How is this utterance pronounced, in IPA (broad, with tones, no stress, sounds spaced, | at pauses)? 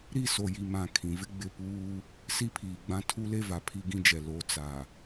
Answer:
ɾ i˦˨ s o˨ j i˨ m ã˨ kʰ ĩ˨ v ɪ˦ ɡ͡b ɪ˦˨ p uː˦ | s i˦ pʰ iː˨ ɡ͡b ã˦ tʰ u˦ l e˦ v a˨ pʰ i˦ ɡ ĩ˦ d͡ʒ ɛ˨ l o˨˦ t͡s a˨